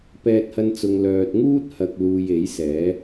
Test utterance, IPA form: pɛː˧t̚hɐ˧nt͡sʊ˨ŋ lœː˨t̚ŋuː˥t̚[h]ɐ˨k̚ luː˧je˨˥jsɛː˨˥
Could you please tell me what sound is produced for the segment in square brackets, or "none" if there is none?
h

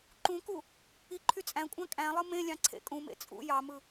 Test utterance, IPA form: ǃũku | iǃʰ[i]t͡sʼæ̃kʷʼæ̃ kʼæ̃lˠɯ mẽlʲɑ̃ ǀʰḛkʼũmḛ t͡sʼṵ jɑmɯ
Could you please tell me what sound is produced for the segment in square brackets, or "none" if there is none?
y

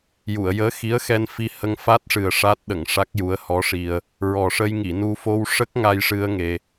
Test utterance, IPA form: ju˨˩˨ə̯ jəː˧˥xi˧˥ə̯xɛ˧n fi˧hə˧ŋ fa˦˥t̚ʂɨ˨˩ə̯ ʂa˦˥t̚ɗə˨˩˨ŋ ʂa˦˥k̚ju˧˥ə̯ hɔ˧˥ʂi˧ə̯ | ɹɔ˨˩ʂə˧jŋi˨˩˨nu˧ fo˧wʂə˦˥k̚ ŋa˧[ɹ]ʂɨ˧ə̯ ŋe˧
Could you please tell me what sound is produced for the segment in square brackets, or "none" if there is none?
j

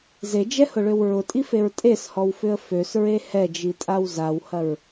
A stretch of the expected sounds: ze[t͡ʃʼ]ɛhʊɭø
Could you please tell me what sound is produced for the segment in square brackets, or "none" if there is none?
d͡ʒ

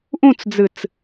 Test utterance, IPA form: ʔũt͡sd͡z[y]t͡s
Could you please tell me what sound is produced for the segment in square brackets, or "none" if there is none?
ɨ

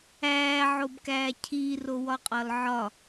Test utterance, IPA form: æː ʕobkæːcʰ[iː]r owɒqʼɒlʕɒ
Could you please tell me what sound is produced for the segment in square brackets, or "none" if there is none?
iː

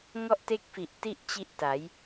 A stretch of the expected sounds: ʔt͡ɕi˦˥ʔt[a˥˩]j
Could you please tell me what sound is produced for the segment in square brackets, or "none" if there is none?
a˩˦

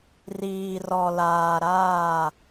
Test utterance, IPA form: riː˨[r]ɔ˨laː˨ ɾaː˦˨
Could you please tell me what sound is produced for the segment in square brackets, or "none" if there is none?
r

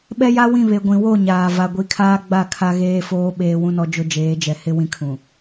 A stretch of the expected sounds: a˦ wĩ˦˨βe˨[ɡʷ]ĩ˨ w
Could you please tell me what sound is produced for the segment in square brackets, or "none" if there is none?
ɡʷ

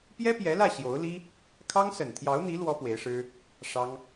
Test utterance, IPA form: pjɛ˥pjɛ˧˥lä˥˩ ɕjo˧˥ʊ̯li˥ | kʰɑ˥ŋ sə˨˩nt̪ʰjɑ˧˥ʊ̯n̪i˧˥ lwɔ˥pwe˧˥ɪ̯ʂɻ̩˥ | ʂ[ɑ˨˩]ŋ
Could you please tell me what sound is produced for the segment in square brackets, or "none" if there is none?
ɑ˥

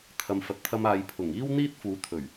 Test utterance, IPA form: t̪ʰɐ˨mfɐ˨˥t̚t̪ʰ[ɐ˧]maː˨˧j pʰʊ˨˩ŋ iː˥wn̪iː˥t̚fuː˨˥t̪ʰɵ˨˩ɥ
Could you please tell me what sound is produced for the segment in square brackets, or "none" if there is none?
ɐ˧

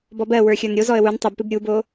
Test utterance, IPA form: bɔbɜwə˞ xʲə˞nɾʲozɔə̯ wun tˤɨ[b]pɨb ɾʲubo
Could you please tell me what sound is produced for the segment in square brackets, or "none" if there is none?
b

